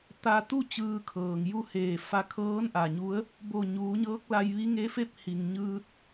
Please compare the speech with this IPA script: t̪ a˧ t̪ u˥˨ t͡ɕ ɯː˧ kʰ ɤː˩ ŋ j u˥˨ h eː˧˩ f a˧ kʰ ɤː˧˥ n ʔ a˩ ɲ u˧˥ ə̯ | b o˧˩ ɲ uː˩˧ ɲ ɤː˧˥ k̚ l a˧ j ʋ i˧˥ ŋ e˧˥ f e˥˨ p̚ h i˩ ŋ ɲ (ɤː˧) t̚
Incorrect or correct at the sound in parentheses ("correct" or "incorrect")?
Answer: incorrect